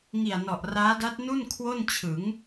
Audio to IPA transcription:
ŋ i˨˩ a̯ n ɔ˨˩ ʔ r aː˦˥ d a˦˥ t̚ n u˥˩ n kʰ w o˥˩ n t͡ɕʰ ɯ˩˦ ŋ

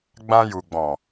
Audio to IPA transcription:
ɡ͡b ã˧ j u˨ ɡ͡b ɔ̃˨

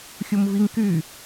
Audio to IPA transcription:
xʲ u m v i ŋ k y

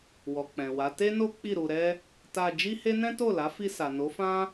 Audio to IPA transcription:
w ɔ˨ k͡p ɛ̃˨ w a˨˦ t e˦ n o˦ k͡p i˦˨ ɾ u˧ ɾ ɛ˦ | t a˧ d͡ʒ i˦ h e˦ n ɛ̃˦ t o˦˨ l a˨˦ f i˧ s a˨ n o˨˦ f ã˦

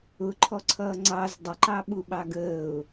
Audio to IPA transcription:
ʊ ǃʰ ɔ ǀʰ ʌː ŋ͡ǀ ɑ z dˤ ə ǃ ɑ ɓ u ɓ ɑ ɡ əː ʊ̯

